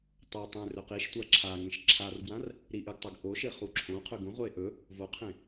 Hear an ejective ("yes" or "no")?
no